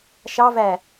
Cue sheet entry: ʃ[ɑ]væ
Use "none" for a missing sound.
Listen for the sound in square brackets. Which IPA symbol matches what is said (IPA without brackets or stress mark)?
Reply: ɑ